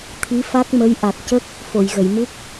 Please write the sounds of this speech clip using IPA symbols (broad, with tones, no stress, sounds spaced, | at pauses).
t̪ʰ i˧˥ f a˦˥ k̚ m ə˧˥ j ʔ a˨˩ t̚ c ə˦˥ k̚ | f o˨˩˨ j ɣ ə˨˩˨ j m u˦˥ k̚